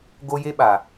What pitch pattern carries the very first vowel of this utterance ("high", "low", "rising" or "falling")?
high